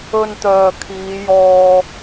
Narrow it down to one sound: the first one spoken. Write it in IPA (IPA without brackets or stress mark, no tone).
ɵ